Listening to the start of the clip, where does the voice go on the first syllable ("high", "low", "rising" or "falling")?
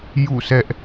falling